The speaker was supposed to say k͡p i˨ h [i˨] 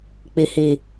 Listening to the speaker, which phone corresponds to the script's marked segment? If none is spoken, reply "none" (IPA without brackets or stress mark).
i˨